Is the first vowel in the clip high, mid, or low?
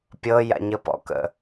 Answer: mid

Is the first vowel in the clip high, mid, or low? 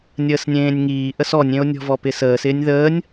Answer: mid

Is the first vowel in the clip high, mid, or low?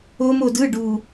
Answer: mid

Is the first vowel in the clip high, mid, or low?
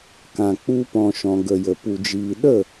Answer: low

